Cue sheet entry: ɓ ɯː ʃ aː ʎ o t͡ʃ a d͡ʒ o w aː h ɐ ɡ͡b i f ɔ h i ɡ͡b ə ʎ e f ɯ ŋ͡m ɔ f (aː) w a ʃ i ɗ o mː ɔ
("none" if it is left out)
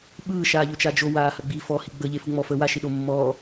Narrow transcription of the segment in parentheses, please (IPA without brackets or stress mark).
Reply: əː